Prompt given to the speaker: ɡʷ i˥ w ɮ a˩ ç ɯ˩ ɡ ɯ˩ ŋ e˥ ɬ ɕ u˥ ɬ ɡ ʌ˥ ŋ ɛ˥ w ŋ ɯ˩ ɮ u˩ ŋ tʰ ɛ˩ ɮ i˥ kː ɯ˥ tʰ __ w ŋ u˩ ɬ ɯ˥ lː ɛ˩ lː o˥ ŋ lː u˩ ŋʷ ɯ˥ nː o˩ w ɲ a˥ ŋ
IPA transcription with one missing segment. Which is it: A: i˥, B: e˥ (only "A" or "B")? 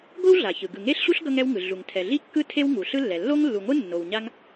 B